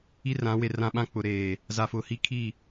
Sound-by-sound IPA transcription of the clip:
i˦ r ã˨˦ w e˨ r ã˦ ɓ ã˦ k͡p ʊ˨ ɾ eː˨ | z a˨ f ʊ˨ h i˦ kʰ i˦˨

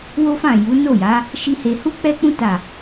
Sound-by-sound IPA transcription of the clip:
w o˦ f ã˦˨ j u˨˦ n o˦˨ j a˨˦ | ʃ i˦ h e˧ h u˦ k͡p ɛ˦ k͡p ũ˦ t a˦˨

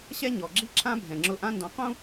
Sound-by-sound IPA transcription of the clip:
ɕ ɛ˥ ɲ ɔ˩ ɡ͡ǁ i˥ ǁʰ ã˥ bʱ ɛ̃˩ ŋ͡ǁ ʊ˧ ʔ ã˥ n d ɔ̃˧ q ũ˥

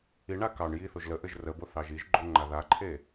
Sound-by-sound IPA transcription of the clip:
i ɳ a k ɑ ɳ j i θ o ʒ l ə ʔ ɘ ʒ r ə b o θ ɑ ʒ i ʒ ɡ͡ǃ o ŋ͡ǃ a ð a ǃʰ e

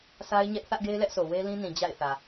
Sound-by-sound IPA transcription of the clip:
sʰ a˦ ɪ̯ ɲ ɛ˦ ʔ θ ä˦ ʔ ɡ e˦ ɪ̯ l ɛ˦ ʔ s o˨ w e˦ l ĩ˦ n ĩ˨ d͡ʑ a̰˦˨ ɪ̯ θ ä˨

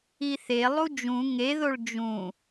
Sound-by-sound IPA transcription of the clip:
i θ e lˠ u d͡ʒ ũ ŋ e ð o ɭ d͡ʒ ũ

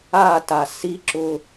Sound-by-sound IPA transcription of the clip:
a t a s i ǁ ʊ

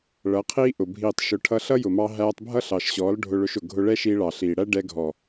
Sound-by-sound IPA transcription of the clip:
ɭ ʌ˨˦ qʰ iː˦ ʔ ʊ˨ bʱ iː˨ tˤ ʃ ʊ˨ ʈʰ ʌ˧ ɬ ʌ˦ j ʊ˨ m ɑ˧ ɦ æː˧ tˤ bʱ ʌ˦ ɬ ɑ˨ ʃ ɕ ɔː˨˦ l ɖʱ ʊ˧ ɭ ʊ˧ ʃ ʊ˨ ɡʱ ʊ˧ ɭ ɛ˦ ʃ iː˧ ɭ ɑ˨ ɬ iː˨ ɽ æ˦ ɖ ɛ˧ ɡʱ ɔ˨

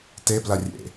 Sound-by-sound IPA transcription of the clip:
t e b l a rʲ ḛ

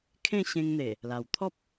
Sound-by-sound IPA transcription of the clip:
kʰ ẽ˥˧ ɕ ẽ˧ ŋ n̪ e˨˩ | l a˨˩ w t̪ʰ ɔ˦ p̚

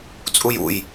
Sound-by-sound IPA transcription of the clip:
t͡sʼ u j ṵ j

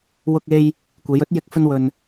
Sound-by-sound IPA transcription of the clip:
w ʊ˧ k̚ e˧ j | kʷ e˨˧ j ɵ˨˥ t̚ j ɪ˧ k̚ f ɵ˧ n w ɵ˨ n

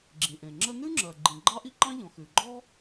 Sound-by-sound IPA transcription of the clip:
ɡ͡ǁ ĩ˩ ʔ ẽ˩ ŋ͡ǁ ə˥ n ʉ˥ ŋ͡ǁ ɜ˩ ɡ͡ǃ ĩ˩ ɡ͡ǃ ɑ˥ ʔ i˥ ǃ ɑ̃˥ ʎ ɔ̃˩ x ʉ˩ ɡ͡ǃ ɔ˥

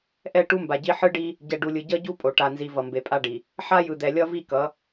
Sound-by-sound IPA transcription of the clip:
ʔ ɛ˦˨ ʈ u˦ m b a˨ ɟ i˦ ħ ɯ˦ ɖ i˦ | ɟ ɛ˨ ɖ u˨ lʲ ɯ˨ ɟ ʌ˦ ɟ u˦ pʼ o˨ ʈ a˨ n z i˨ v ʌ˨ m b e˨ pʼ a˦ ɖ i˨ | ħ a˦ j ɯ˨ d̪ ɛ˨ lʲ ʌ˦ v i˦˨ k ʌ˨˦

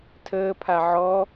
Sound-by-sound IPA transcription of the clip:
tʰ əː pʰ a ʕ ɔ

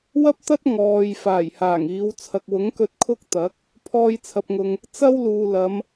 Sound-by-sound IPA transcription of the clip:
w ɐ˥ p̚ t̪ ɐ˥ t̚ ŋ ɔː˨ j f aː˨˩ j h aː˨˩ ŋ iː˨˧ w t͡sʰ ɐ˨ k̚ w ʊ˨˥ ŋ k ɵ˧ t̚ kʰ ʊ˥ k̚ t̪ ɐ˨˥ k̚ | pʰ ɔː˧ j t͡sʰ ɐ˨ p̚ ŋ ʊ˨ ŋ | t͡s ɐ˥ w l uː˨ l ɐ˨˧ m

